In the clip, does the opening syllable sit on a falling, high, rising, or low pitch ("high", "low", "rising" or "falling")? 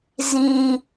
low